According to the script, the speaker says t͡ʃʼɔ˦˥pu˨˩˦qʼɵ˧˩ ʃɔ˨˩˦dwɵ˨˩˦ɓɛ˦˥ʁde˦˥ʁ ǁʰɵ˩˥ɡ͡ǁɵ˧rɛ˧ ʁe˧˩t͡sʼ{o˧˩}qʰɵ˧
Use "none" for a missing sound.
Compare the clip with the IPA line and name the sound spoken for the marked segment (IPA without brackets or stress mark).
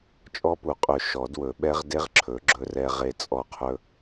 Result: ɔ˧˩